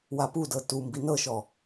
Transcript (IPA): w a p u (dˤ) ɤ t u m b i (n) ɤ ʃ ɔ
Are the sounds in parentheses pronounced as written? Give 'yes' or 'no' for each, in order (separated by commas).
no, yes